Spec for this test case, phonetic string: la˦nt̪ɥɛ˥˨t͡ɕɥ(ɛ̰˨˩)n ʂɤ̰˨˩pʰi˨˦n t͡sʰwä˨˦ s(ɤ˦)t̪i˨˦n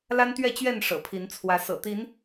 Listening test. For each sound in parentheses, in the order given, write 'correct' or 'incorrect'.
incorrect: ɛ˥˨, incorrect: ɤ̰˨˩

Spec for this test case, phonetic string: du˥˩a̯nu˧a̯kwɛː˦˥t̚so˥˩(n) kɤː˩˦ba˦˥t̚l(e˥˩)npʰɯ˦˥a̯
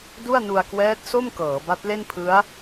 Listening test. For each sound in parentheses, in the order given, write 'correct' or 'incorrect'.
incorrect: m, correct

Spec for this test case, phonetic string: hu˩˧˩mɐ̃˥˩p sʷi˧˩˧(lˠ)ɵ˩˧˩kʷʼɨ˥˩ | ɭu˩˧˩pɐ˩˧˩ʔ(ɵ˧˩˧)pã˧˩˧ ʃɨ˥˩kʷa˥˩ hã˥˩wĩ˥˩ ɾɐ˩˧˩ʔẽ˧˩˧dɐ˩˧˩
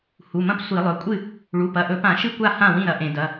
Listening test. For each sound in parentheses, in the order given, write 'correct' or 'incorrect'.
correct, correct

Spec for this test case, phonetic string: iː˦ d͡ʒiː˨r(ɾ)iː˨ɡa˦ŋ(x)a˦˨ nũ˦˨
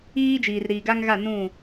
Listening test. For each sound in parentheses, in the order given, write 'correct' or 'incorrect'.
correct, incorrect: ɣ

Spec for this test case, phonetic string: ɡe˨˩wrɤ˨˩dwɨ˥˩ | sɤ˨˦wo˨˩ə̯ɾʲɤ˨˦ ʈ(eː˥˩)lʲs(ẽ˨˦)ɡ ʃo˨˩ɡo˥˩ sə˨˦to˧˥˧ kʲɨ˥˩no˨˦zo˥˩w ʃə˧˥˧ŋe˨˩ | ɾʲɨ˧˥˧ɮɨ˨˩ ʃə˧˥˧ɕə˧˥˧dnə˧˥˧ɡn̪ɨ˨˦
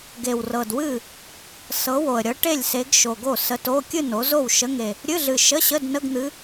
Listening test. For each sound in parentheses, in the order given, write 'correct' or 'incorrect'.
incorrect: e˥˩, incorrect: e˨˦

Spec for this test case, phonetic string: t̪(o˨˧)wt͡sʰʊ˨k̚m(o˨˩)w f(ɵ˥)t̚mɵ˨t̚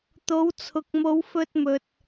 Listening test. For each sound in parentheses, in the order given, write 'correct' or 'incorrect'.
correct, incorrect: o˨˧, incorrect: ɵ˧

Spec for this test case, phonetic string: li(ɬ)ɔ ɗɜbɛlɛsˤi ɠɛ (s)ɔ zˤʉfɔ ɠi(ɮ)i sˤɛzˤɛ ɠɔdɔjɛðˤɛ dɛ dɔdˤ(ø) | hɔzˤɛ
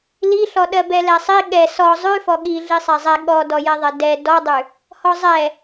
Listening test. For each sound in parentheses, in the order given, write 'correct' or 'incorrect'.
correct, correct, correct, incorrect: ʉ

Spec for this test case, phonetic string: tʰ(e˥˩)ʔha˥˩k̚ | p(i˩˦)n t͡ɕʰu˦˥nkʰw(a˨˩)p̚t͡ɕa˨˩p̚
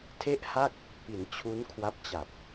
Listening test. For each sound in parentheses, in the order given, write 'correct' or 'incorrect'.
correct, correct, incorrect: a˦˥

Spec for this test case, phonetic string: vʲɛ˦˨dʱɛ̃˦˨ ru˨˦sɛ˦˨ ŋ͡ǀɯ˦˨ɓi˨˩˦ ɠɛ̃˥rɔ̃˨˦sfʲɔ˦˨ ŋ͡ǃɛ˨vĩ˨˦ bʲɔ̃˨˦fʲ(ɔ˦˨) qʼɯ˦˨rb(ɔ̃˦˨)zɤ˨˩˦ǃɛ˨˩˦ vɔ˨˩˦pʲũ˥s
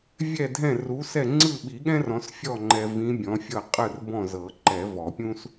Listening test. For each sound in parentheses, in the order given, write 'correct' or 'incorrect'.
incorrect: ɤ˦˨, correct

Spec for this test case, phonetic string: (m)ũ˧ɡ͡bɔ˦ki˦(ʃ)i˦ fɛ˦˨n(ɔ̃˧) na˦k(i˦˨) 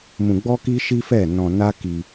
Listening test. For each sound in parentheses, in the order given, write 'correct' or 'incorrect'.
correct, correct, correct, incorrect: i˧

